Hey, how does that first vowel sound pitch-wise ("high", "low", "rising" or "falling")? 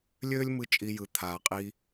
high